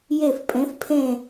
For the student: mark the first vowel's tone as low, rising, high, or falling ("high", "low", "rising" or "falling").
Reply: falling